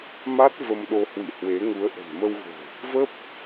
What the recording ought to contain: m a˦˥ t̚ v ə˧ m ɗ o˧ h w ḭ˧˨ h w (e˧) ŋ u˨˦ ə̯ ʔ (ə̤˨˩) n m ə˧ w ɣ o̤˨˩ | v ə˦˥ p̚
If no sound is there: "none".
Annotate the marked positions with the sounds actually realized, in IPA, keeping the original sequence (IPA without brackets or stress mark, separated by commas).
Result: e˨˦, ə̤˨˩